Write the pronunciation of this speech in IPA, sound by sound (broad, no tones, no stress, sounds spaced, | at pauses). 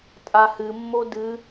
tʼ a h ɨ mː o d ɨ